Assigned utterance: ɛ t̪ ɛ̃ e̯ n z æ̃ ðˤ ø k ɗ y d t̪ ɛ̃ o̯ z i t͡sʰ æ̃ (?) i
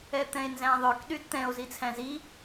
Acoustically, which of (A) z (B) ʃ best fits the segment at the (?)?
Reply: A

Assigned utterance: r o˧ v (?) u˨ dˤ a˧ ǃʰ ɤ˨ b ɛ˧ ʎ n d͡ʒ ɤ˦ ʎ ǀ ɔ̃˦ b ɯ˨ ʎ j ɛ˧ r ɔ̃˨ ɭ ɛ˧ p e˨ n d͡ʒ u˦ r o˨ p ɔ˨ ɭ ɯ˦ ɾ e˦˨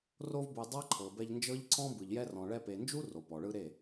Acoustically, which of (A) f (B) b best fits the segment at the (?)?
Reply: B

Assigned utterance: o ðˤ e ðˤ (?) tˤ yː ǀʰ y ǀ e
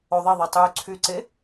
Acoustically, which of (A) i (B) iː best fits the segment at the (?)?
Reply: A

